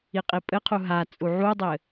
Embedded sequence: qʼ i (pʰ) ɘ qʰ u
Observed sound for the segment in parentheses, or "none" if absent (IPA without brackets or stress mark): pʼ